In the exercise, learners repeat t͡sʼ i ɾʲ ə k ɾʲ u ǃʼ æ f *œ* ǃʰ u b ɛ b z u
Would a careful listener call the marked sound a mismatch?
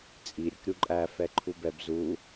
yes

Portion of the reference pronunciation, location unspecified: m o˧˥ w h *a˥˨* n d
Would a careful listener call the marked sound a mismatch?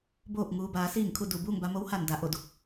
yes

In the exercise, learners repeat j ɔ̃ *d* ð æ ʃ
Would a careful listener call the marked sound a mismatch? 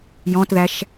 yes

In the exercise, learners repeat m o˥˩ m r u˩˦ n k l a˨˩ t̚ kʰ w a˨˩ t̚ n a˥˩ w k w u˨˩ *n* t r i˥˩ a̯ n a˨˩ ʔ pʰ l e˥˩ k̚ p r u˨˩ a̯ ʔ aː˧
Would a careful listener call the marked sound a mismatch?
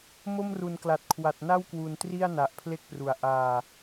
no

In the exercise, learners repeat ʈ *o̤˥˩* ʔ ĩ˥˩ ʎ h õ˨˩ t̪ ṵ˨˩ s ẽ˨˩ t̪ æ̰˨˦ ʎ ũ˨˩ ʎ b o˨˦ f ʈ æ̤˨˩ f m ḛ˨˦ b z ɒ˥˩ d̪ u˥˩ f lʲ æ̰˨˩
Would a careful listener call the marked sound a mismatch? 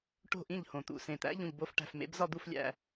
no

